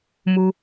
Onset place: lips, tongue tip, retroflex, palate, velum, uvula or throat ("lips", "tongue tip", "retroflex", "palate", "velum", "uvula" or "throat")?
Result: lips